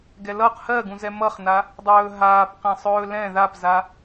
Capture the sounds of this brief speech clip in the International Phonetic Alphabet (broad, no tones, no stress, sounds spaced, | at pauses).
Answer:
ɡ ɛ l ʌ q h ɜ ɡ ũ z ɛ m ʌ χ n a | dˤ ɵː ɦ aː p q ɛ̃ sˤ ɵː l ɛ̃ ð a p z a